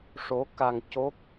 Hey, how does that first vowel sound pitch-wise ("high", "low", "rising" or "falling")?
rising